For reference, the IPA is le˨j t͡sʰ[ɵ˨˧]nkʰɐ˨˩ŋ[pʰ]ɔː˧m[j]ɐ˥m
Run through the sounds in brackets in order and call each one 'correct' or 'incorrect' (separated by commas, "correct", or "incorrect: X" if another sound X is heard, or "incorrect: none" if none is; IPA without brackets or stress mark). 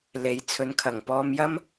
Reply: correct, incorrect: p, correct